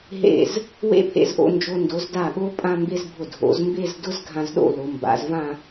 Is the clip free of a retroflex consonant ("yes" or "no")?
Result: yes